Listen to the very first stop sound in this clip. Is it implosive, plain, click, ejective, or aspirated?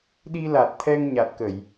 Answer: implosive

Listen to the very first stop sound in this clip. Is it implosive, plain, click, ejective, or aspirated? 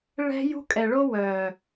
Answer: ejective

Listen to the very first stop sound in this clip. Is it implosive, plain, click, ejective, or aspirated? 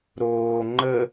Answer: click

